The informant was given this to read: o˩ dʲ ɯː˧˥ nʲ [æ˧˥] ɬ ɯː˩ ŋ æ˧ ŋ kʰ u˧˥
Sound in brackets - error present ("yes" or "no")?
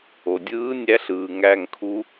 no